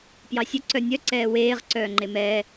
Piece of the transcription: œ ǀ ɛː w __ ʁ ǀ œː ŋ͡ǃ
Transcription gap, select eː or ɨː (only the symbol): eː